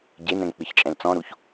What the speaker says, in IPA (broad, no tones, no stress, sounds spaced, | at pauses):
ɟ e n ɛ̃ ŋ k͡p ɨ ç t͡ʃʼ ɛ̃ l t͡s ɔ̃ ɾ u ç